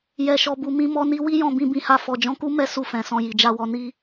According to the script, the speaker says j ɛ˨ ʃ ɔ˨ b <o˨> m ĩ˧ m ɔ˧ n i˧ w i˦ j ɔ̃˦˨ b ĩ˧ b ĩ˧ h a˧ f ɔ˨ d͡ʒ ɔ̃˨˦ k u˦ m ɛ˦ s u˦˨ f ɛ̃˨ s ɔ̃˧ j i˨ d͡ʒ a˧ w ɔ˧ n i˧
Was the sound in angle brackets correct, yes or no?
no